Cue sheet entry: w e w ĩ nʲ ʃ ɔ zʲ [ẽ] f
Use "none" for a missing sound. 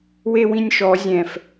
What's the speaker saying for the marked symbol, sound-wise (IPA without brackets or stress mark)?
ɛ̃